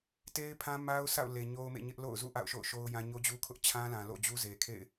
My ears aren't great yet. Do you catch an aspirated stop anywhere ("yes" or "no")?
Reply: yes